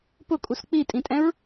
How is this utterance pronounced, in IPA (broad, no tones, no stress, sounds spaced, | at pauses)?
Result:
p ʊ kʼ u s k͡p i tʼ ĩ tʼ ɛ̃ ɹ